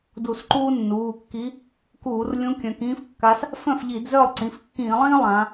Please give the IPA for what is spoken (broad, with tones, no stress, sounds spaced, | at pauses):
d u˧˩˧ s ǃ uː˥ nː uː˩˧˩ kː i˧˥ | k uː˧˩˧ r lʲ ũ˧˥ kʲ œ̃˩˧ k ĩː˥ f kː a˧˥ s | f œ̃˥˩ f ʎ i˧˩˧ d z œ˥˩ lˠ ǀ ĩ˩˧˩ f kː ĩː˧˩˧ lˠ ĩː˥ lˠ ã˩˧